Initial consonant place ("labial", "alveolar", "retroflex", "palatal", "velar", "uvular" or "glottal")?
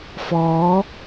labial